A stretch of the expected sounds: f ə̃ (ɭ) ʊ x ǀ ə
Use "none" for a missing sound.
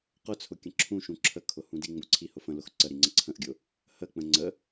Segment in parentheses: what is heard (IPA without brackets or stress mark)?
l